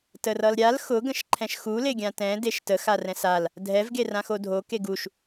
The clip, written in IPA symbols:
t ə r ʌ l ɾʲ a l x ʊ ɡ ə̃ ʃ ǃʰ ɛ̃ ʃ x u l e ɡʲ ã t ɛ̃ d e ʃ t ə x a r ɛ̃ s a l | dʱ ɛ v ɡ e r ã x o dʱ o k e ɡ u ʃ

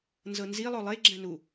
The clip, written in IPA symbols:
n z ɤ n z i lˠ o lˠ e ɡ͡ǁ ɛ̃ n u

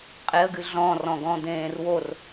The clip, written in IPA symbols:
qʼ e ə̯ ɡ ɨ ɮ ɔ̃ r ɔ̃ ɡ ɔ̃ d̪ ẽː r w o r

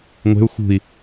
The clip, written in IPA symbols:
ŋʷ e̤ u̯ x ṳ i̯

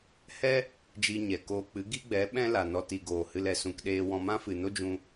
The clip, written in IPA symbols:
h ɛ˦ | d͡ʒ i˧ ɲ ɛ˨ k oː˧ k͡p ɨ˨˦ ɡ i˦ ɡ͡b ɛ˨˦ ɓ ɛ̃˦ l a˨ n ɔ˧ t i˨ ɡ oː˨ h ɨ˧ l ɛ˨ s ũ˧ k ɗ eː˧ w ɔ̃˧ m ã˦ f ɨ˨ n o˦ d͡ʒ ũ˧

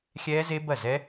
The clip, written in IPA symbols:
xʲ ɛː˦˥ z e˦˥ b ɐ˥˩ z ɛ˦˥

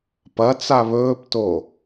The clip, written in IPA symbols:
p ɐ t͡s a β ɵː p t o

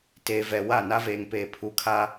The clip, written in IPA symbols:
t eː˨ v ɛ˨ w a˦˨ n a˦ v eː˨ ŋ p eː˨ pʰ u˨˦ kʰ a˦

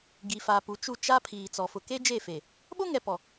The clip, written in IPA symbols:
ɡ i˨ f a˨ p u˨ t͡ʃ u˦˨ t͡ʃ a˦ pʰ iː˨ t͡s ɔ˨ f ʊ˨ k e˦ d͡ʒ e˦˨ f e˨ | ɓ o˦ ŋ ɛ˨ p ɔ˨

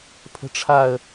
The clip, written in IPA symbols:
pʰ ə̤ ʈ͡ʂʰ a ə̯

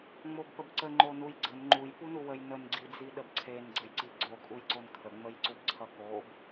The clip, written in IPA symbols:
ŋ͡m o b p ə b ǀ ə ŋ͡ǃ o n u j ɡ͡ǀ ə n ŋ͡ǃ u j p u n u w ə j n ə n ɡ͡ǀ i d͡z i ɗ ə b ǀʰ e n ɡ͡ǀ ə j ǀ i ɡ͡ǀ o kʼ u j ǀ o n kʰ ə ŋ͡m ə j ǀ u b ǀʰ ʌ k o b

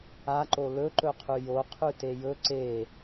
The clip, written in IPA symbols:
a ǃ o l ɵ ǃ ɵ qʰ ʉ j o qʰ ʉ t e j ɵ ǀ e

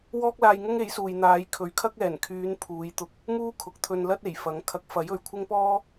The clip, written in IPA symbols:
w ɔː˥ k̚ l aː˧ j ŋ ʊ˥ ŋ e˨˥ j s uː˨ j n̪ aː˨˧ j kʰ ɵ˨˥ ɥ kʰ ɐ˥ k̚ ɛː˨˩ n kʰ yː˨˧ n pʰ uː˨˧ j t̪ ʊ˧ k̚ | m uː˥ kʰ ʊ˨ k̚ t̪ʰ ɵ˧ n l ɐ˥ t̚ e˨˩ j f ɐ˨˥ ŋ kʰ ɐ˨˥ k̚ f ɐ˨˥ j ɵ˨ ɥ kʷʰ ɪ˥ ŋ p ɔː˥

